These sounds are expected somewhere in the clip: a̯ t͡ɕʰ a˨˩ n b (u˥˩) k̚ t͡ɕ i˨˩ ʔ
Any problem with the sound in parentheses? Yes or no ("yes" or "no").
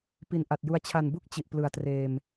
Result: no